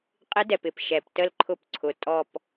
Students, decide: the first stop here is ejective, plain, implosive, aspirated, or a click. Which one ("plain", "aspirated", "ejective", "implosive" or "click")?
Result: ejective